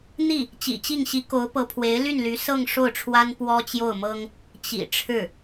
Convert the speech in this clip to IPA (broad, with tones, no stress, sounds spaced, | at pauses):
n̪ i˥˩ | t͡ɕ ḭ˨˩ t͡ɕ i˥˩ ŋ ɕ i˧˥ k o˧˥ ʊ̯ p ɤ˧˥ pʰ w e˧˥ ɪ̯ l y˥˩ n l y˧˥ s ɤ˥˧ ŋ ʂ o˥˩ ʊ̯ ʈ͡ʂʰ w a˥ n p w ɔ˥ t͡ɕ j o˥˩ ʊ̯ m ɤ˥ ŋ | t͡ɕ ḭ˨˩ ʈ͡ʂʰ ɻ̩˥˩